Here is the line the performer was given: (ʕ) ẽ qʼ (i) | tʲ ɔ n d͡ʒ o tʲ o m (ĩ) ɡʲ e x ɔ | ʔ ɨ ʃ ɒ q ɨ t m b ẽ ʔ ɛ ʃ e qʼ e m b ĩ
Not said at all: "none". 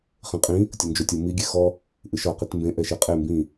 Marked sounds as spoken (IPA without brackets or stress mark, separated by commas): χ, ĩ, i